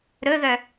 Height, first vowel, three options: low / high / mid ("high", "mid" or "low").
mid